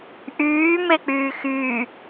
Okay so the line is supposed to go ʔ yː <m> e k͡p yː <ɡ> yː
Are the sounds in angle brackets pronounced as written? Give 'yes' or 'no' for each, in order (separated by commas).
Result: yes, no